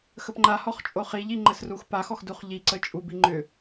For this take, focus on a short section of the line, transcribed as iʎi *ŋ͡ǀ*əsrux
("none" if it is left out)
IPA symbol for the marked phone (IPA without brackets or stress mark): ŋ͡ǃ